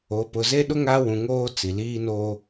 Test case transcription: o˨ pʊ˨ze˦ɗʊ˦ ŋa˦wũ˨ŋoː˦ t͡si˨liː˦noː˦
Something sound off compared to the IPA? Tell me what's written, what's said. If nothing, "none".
none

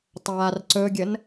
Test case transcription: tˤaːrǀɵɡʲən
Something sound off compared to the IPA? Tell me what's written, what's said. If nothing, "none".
none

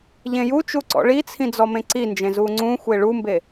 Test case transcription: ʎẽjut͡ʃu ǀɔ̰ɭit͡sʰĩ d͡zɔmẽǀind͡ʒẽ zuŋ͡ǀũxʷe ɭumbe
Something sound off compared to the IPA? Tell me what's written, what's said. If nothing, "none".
none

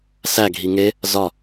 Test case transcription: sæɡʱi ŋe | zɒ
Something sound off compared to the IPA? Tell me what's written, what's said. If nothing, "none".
none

